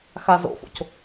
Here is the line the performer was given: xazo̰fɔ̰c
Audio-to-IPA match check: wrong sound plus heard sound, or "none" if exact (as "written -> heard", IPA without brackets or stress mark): ɔ̰ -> o̰